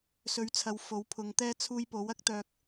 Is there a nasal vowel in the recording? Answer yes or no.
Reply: no